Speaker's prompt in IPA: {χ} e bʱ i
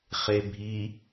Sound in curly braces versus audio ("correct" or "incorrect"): correct